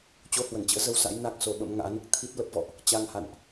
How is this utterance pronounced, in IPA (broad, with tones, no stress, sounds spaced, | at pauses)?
t͡ɕ o˧ h w ə˧˩ n t͡ɕ ə̰ː˧˥ z ə˧ w s a̰˧˥ j n a˦˥ k̚ s o˨˦ ɓ ə̰˧˥ m ŋ a̰ː˧˥ n ɨ˦˥ k̚ t̪ʰ i˦˥ t̚ l ə˦˥ p̚ v ɔ̰˧˨ ʔ | t͡ɕ a˧ ŋ h a̰˧˨ n ʔ